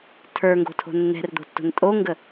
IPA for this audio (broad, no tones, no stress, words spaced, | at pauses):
tʰə˞ŋɡo̤tʰo̤ nːɛ̤rd̪o̤tːo̤n tʼoŋɡə